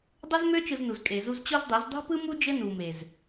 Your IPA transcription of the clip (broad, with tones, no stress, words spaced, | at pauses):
dˤɘ˦zmø˦ t͡ʃɯ˧znu˨z kʼe˨zu˧z t͡ɕo˦zdˤe˨˦z dˤṳ˦pɯ˦mu˦ d͡ʒɘ˦nu˨me˨z